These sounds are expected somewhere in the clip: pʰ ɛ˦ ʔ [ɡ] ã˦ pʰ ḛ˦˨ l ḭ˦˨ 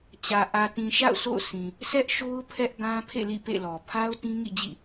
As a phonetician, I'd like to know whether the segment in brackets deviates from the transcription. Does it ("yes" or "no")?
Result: no